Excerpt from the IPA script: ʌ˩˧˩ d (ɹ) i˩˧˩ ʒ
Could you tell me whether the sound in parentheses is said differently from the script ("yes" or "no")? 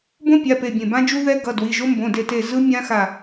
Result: yes